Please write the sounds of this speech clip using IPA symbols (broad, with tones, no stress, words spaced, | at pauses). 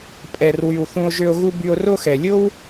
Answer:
pʼɛ˨rwy˨w θũ˧o̯ʒø˧o̯ɣu˦ by˧o̯ro˦xɛ˨ lʲo˦w